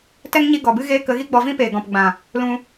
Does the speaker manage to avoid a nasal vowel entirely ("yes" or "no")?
no